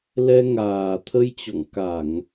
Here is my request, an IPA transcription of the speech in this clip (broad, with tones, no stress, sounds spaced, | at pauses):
l ɛ˧ ŋ aː˨˩ t̪ʰ ə˧ j t͡ɕ ɔ̰˧˨ ŋ k a˧˩˨ ŋ